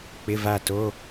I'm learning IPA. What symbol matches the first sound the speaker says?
k͡p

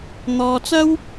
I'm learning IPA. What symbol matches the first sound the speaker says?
n̪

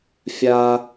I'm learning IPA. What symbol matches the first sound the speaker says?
fʲ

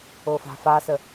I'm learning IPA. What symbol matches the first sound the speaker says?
o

